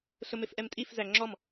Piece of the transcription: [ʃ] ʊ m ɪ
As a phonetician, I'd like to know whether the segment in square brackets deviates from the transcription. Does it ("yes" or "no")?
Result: yes